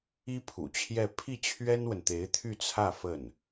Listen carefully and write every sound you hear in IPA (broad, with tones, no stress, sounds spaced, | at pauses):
i˥ pʰ ṵ˨˩ t͡ɕʰ j ɛ˥˧ pʰ i˥˩ t͡ɕʰ ɥ ɛ˥ n w ə˨ n t̪ e˧˥ ɪ̯ t̪ʰ y˥˧ t͡sʰ ä˥˧ f ə˥˩ n